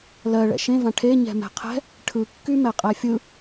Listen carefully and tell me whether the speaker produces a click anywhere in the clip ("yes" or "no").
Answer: no